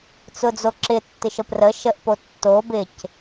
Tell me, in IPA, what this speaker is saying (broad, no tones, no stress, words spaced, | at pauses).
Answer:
t͡sʊd͡zoǁɪtːɪʃ əprə ʃəʔpo tːo bɪc